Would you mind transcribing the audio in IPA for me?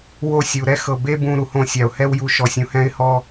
w o˧ sʲ u˨ ɾ ɛ˦ x ɤ˨ b e˦ b ũ˧ ɾ u˨ h õ˧ sʲ a˨ ʊ̯ h ɛ˦ w j u˧ ʃ ɔ˨ sʲ ũ˨ h ɛ̃˧ ɪ̯ h ɔ˧

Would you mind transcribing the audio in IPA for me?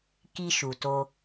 k i˧ ʃ u˨ t o˧

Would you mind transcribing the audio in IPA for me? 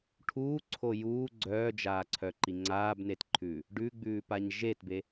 ʈʰ uː ǀʰ o j uː ɡ͡ǀ œː d͡ʒ aː ǀʰ œ ǃ i ŋ͡ǀ aː b n e t ǃʰ ʉː | ɖ ʉ ɡ͡b ʉː p a ɲ ʒ e t b e

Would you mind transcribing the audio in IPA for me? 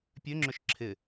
pʲ ø ŋ͡ǁ ʏ ʃ ǁʰ ɪ

